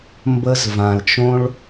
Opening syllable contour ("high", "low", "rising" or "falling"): high